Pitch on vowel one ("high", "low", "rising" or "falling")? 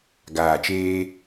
low